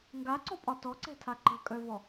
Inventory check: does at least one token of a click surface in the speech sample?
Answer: yes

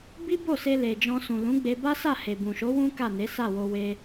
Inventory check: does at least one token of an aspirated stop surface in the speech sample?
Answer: no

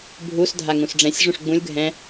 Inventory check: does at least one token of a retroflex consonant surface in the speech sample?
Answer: yes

